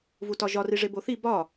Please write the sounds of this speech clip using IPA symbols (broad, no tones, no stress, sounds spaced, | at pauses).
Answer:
v u t ɒ ʒ ɒ r i ʐ e b o θ i b ɒ